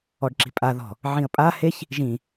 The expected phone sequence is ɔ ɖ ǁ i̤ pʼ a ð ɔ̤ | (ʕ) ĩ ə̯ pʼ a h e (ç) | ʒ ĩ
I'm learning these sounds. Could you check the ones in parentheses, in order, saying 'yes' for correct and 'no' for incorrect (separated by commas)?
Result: yes, yes